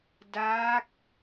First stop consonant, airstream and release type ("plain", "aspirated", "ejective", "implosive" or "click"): plain